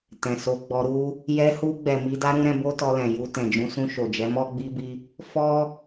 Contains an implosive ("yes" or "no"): no